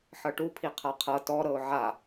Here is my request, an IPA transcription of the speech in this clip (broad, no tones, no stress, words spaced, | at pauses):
ħɤʈupʰi qʰaqʰɤ tɔ ɾɤʊ̯ʕa